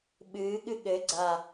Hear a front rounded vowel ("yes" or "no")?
no